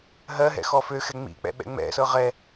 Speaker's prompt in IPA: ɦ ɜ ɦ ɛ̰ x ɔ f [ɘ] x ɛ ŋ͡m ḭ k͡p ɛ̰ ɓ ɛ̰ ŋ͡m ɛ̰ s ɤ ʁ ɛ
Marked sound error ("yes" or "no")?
yes